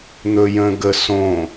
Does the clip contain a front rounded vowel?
no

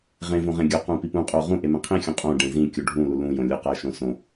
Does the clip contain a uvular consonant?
yes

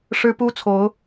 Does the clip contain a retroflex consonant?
yes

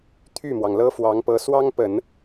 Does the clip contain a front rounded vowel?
yes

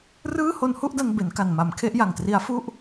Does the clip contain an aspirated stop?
yes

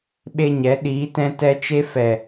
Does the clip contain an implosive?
yes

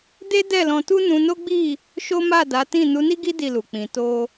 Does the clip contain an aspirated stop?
no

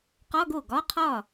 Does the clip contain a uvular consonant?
yes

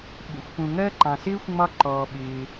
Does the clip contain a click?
yes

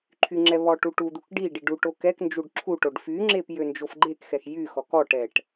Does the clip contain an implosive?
no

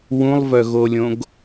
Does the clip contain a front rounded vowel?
yes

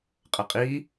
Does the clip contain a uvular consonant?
yes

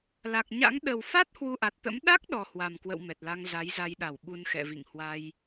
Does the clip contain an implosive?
yes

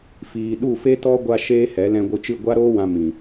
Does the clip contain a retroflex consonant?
no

